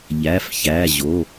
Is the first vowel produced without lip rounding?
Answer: yes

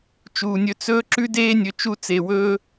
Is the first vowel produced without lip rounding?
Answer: no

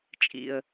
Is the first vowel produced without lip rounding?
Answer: yes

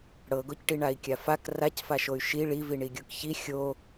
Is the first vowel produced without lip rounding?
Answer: yes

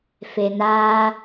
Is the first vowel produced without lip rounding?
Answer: yes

